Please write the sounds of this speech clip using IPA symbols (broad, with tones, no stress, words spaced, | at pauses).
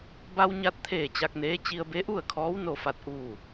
ba˧wɲa˧t̚t̪ʰeː˧˩ t͡ɕa˧k̚neː˧˥ t͡ɕi˧ə̯be˧˥ʔu˥˨ə̯kʰɔː˧˥w no˥˨fa˥˨t̚ ʔuː˥˨